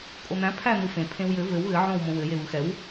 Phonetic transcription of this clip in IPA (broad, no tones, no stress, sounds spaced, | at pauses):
kʼ o n̪ æ̃ pʰ æ n̪ ɯ f ẽ pʰ ẽ w j ɘ v ɘ w ɣ ɘ ʕ õ w m õ w ɘ j e β ɯ x ɛ w